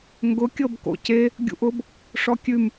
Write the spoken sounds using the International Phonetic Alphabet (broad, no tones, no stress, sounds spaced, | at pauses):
ŋ ɡ ʊ kʲ ɤ b k o̰ c e | ɡʲ ṵ ʔ ʊ b | ʂ ɔ kʲ ʉ m